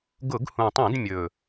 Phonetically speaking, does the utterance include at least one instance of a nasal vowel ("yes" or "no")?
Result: yes